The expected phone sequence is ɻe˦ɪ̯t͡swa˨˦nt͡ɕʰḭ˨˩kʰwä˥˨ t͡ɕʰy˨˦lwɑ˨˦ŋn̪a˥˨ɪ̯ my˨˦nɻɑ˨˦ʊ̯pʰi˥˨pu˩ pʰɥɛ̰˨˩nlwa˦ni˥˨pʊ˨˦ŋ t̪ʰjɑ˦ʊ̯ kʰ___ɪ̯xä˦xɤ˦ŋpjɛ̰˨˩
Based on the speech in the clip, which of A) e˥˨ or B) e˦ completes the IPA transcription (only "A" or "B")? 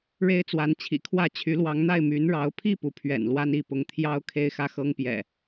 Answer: B